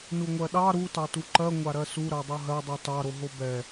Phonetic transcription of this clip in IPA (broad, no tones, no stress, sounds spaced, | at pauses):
n u ŋʷ ɜ ɗ ɑ ɾ u t ɑ t u ǃ ɜ ŋʷ a ɾ ɜ s u ɾ ɜ dˤ u ɦ ɜ dˤ u t ɑ ɾ o ɦ o b ɛ